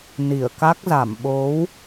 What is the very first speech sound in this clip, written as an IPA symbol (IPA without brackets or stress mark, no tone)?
n